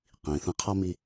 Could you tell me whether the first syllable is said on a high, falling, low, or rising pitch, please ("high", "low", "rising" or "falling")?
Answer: low